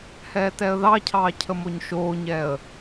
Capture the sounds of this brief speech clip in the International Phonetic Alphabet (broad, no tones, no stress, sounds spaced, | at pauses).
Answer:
h ɛː t ɛ ə̯ ð ɑ cʰ ɑː cʰ ə m o ɲ ʃ oː ɲ ɛ ə̯